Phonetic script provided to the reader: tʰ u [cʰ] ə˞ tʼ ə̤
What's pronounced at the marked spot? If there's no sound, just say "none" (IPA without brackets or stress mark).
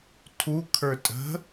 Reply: kʰ